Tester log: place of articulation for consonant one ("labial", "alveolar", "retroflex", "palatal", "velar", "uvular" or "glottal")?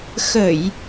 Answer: velar